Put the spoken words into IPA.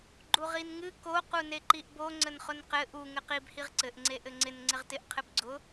ɡ͡ǃ u ʁ i n ŋ ɨ k o q u n e ǃ i ʔ b o ŋ͡ǀ ə n χ ʊ n q ɘ ʔ u ŋ ɘ q i b h i ʁ ǀ ɘ ʔ ŋ͡ǀ e ʔ ɘ ŋ͡ǀ ɪ n ŋ͡ǀ ɪ ʁ t ɪ ʔ qʰ ɘ b ɡ͡ǀ ʊ

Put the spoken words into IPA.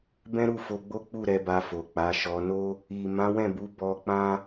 b ɛ̃˦ ɾ u˦˨ f o˧ ɡ͡b o˦ k͡p u˦˨ ɾ ɛ˧ b a˧ f o˨ k͡p a˨˦ ʃ ɔ˧ n o˦ | i˨ m ã˨˦ w ɛ̃˦˨ b u˨˦ b ɔ˧ k͡p ã˦

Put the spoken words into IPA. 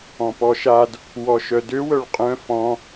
ɔ̃ p ɔ ʃ a d | w ɔ ʃ œ d ø w œ ɭ qʼ œ̃ f ɔ̃

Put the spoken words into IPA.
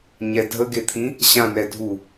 ɲ ɛ dʱ ə ɡ e t̪ʰ ĩ | ɕ ã n ɛ dʱ u

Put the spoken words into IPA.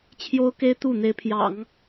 t͡ɕʰ j o˥ ʊ̯ k e˥ ɪ̯ t̪ u˥˩ n̪ e˧˥ ɪ̯ pʰ j ɑ̰˨˩˦ ŋ

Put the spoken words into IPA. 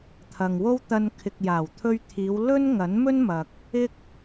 t̪ʰ ɐ˨ ŋ w o˥ w t̪ ɐ˧ n kʰ ɪ˨ k̚ j aː˨˩ w t̪ʰ ɵ˧ ɥ t̪ʰ iː˨˧ w l ɵ˥ n ŋ ɐ˨˥ n m ɵ˥ n m ɐ˨ k̚ | ɪ˥ k̚

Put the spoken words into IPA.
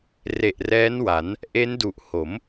r e˨˩ ʔ r ɛː˦˥ n w a˩˦ n | ʔ e˦˥ n d u˨˩ ʔ h o˩˦ m

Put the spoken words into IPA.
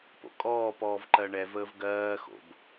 p o̰ kʼ ɔː p ɔː v ǃ ɜ ɳ ɛ v əː v ɡ ɜː x o̰ b

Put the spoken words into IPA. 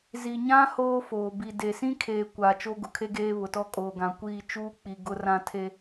z i˨ ɲ ã˦ h oː˦ f oː˨ b i˨ d e˨ s ĩ˦ kʰ eː˨ kʷ a˨ t͡ʃ o˦ ɡ ʊ˨ kʰ e˦ ɡ eː˦ β ʊ˨ t ɔ˦ kʼ oː˨ ɡ ã˨ kʷ iː˦˨ t͡ʃ uː˦ k͡p i˨ ɡ ʊ˨ r ã˨ tʰ e˨

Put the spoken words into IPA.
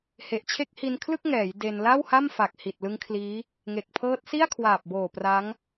h e˨˩ ʔ t͡ɕʰ e˦˥ k̚ h i˧ n kʰ l ɯ˥˩ k̚ ŋ ɛː˩˦ j d e˧ n l a˥˩ w h a˥˩ m f a˨˩ k̚ h i˨˩ t̚ l ɯ˦˥ ŋ kʰ l iː˦˥ | ŋ e˨˩ k̚ pʰ ɤː˦˥ t̚ s i˥˩ a̯ kʰ w aː˨˩ p̚ b oː˨˩ p r a˦˥ ŋ

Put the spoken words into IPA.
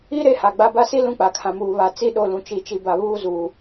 i˦ ɾ e˦ h a˨ ɡ͡b a˦ b a˦ s i˦ l ũ˦ k͡p a˨ kʰ ã˨ m uː˨ β a˨ t͡s i˦ ɗ o˦˨ l ũ˨ t͡ʃ i˨ t͡ʃ i˨ b a˨ β uː˦˨ z uː˨

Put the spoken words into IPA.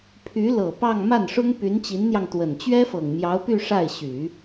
pʰ y˧˥ l ɤ˨˩ p ɑ˥˧ ŋ m a˥˩ n ʂ ʊ˥ ŋ p y˧˥ n t͡ɕ i˧˥ n n̪ j ɑ˧ ŋ t̪ w ə˨˩ n t͡ɕ ɥ ɛ˥ f ɤ˨˩ ŋ m j ɑ˧˥ ʊ̯ p y˥˧ ʂ a˥˩ ɪ̯ ɕ y˨˩˦

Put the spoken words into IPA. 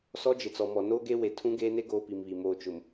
s ɔ˦ d͡ʒ ɪ˨ t͡s ɔ˨ m ɔ˨ n oː˦ ɡ e˦ w e˨ tʰ ũ˦ ɡ eː˦ n e˦ ɡ oː˦ p i˨ m β i˨ m oː˨ t͡ʃ ʊ˨ m

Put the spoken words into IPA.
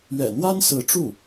ɥ ɛ̰˨˩ n̪ w a˥ n s ɹ̩˧˥ ʈ͡ʂ u˥˩

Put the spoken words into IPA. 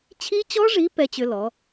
t͡ɕʰ i˦˥ t͡ɕ ɔ˦˥ ʐ i˨˥ p ɛ˦˥ t͡ɕ ʏ˦˥ l ɔ˨˥

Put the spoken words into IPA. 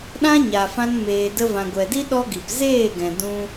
ɗ ã˦ ɲ a˨ f ã˧ n m eː˨ d ə˧ v ã˨ ɡʷ ɛ˨ d i˦ ɗ ɔ˦ ɡ i˨ p z eː˦˨ ɡ ɛ̃˨ d ũ˦

